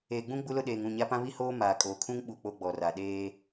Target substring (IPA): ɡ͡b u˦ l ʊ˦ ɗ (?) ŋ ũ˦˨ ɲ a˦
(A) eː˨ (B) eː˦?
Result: A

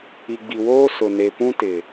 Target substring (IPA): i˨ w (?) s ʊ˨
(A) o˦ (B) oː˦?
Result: B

